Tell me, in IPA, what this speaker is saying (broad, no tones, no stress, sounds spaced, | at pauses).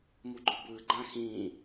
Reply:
m u ɡ͡ǃ o b ɯː ɡ͡ǃ ã x ĩː